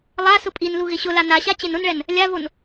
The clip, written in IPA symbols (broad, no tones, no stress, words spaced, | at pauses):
lˠa sʊpʼinlu ɣɪɕʊla naɕa t͡ɕenʊnɭɛn | lʲavon